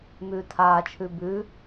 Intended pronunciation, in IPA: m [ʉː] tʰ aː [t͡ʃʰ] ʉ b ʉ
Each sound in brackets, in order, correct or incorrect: correct, correct

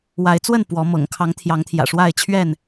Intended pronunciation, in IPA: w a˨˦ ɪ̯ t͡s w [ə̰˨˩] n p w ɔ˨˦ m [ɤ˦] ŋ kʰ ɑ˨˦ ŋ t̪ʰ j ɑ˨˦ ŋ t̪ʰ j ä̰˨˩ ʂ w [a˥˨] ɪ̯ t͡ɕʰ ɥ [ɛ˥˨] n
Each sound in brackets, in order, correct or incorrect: incorrect: ə˥˨, incorrect: ɤ̰˨˩, correct, correct

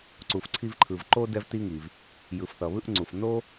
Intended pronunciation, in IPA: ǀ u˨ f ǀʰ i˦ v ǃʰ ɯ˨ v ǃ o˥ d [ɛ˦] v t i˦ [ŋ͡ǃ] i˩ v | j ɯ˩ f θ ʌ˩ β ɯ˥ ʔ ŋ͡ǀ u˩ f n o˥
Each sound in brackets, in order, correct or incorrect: correct, incorrect: ŋ

